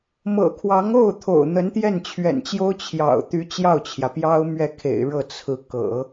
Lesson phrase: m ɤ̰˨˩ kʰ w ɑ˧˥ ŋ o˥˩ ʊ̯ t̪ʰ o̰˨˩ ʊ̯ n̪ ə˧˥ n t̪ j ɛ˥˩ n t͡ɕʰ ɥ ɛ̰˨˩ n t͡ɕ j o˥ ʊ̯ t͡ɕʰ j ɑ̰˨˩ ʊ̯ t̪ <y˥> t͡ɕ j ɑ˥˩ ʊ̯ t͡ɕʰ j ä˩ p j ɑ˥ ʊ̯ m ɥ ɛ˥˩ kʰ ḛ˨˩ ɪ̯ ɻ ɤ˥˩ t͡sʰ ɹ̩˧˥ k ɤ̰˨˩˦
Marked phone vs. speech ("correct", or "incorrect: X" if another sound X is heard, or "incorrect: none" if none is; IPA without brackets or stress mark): incorrect: y˧˥